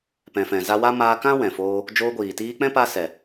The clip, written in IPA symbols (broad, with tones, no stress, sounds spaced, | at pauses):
p ɛ̃˨ f ɛ̃˨ z a˧ w a˦ m aː˧ k ã˦ w ɛ̃˨ f oː˧ | d͡ʒ oː˧ ɡʷ iː˨ t iː˧ k͡p ɛ̃˦ p a˧ s ɛ˨